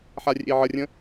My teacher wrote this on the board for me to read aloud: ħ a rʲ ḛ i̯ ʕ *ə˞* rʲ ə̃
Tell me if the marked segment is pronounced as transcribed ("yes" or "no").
no